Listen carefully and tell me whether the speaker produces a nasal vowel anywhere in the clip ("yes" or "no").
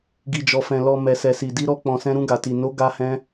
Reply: yes